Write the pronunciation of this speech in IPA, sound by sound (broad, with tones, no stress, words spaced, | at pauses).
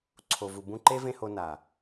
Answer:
ǀʰo˨vu˨ bũ˧ǃe˦ vẽ˦ho˧ na˨